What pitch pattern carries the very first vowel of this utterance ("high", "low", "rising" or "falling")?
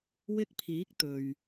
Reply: high